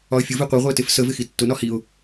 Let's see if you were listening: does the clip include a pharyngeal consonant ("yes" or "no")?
no